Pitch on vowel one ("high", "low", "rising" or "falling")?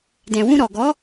low